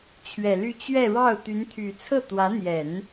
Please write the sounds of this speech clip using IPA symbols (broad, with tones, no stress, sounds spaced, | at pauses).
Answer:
t͡ɕʰ ɥ ɛ˨˩ l y˥˧ t͡ɕ ɥ ɛ˥˧ ɻ ɑ˥˩ ʊ̯ t̪ y˧˥ n t̪ʰ y˨˩ t͡sʰ ɤ˥˩ t̪ w ä˧˥ n̪ j ɛ˨˩˦ n